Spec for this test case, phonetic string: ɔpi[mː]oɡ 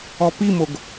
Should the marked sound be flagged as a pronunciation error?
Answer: yes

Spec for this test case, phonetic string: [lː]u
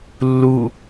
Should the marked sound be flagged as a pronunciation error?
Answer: no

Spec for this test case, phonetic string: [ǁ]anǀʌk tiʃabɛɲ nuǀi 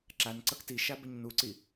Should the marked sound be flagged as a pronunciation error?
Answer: no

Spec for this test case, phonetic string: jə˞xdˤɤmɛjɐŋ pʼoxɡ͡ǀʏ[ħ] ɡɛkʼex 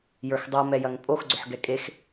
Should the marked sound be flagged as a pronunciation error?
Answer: no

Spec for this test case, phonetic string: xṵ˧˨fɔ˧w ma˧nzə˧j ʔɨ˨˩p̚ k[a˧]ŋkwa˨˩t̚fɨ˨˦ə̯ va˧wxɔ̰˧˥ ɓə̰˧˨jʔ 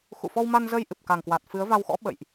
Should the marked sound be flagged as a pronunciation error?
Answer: yes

